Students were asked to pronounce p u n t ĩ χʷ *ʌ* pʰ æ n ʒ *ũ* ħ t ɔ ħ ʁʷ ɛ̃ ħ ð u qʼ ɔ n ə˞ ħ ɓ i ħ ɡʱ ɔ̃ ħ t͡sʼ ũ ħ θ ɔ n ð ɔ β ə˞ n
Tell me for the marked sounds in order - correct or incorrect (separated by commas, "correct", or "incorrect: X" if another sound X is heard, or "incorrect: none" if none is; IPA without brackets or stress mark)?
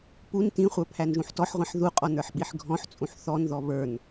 incorrect: ə˞, correct